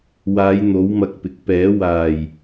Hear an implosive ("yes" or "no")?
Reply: no